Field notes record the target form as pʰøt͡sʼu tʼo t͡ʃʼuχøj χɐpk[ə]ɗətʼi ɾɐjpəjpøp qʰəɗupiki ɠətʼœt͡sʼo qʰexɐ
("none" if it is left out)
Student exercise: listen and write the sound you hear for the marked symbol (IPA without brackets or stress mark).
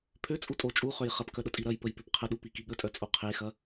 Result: œ